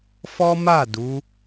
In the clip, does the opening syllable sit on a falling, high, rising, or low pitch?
high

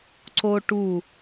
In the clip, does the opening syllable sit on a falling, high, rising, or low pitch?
high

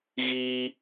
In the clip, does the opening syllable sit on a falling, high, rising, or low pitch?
high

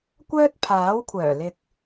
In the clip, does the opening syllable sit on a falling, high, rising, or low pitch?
high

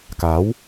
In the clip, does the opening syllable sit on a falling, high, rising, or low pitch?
rising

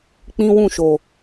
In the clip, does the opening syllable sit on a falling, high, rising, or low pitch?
high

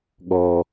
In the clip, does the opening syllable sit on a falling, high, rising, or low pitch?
low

